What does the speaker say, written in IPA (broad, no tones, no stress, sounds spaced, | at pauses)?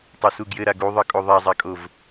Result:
tˤ o s u ɡ j ɘ ɾ a ɡ u ðˤ ɤ kʼ o ðˤ a zˤ a kʼ o v